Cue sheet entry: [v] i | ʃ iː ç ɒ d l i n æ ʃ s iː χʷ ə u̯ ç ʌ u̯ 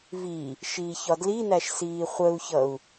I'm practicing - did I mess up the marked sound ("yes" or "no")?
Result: no